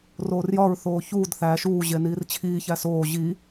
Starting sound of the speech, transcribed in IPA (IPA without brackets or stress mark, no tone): r